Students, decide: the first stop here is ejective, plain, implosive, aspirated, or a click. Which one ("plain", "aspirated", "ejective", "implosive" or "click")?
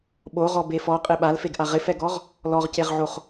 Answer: implosive